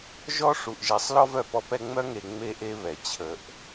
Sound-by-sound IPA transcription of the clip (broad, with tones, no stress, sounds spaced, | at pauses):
ʒ ɔ˦ ʂ u˨ ʔ ʒ e˨ sˤ l ɔ˦ v œ˨ p ɔ˦ p ɛ˦ ŋ͡m œ˦ ŋ e˨ ŋ͡m e˦ ʔ e˦ β ɛ˨ t͡ɕʰ ə˨ ʔ